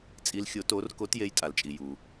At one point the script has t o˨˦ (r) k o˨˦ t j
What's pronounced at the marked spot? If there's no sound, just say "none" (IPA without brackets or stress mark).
r